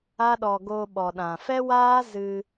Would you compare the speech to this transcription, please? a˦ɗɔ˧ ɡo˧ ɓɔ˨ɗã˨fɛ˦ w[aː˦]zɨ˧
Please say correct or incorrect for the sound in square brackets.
correct